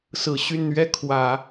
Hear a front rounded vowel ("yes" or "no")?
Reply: yes